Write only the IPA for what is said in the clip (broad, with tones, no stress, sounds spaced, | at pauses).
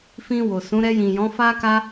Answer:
f ĩ˧ w o˨ s ũ˨˦ ɾ ɛ˧ j ĩ˨ j ɔ̃˨˦ f a˦ k a˦